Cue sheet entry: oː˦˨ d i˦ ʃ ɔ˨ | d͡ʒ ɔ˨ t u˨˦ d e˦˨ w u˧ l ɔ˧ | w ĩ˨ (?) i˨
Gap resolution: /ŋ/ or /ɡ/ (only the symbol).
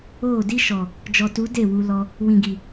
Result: ɡ